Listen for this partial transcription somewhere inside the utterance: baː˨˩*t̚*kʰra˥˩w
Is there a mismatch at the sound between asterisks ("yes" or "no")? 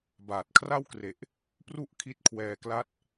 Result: no